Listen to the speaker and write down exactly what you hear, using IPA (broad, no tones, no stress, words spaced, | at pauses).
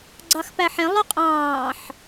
ɡ͡ǀɑxpæħẽ lˠoqʼɑ̃ːħ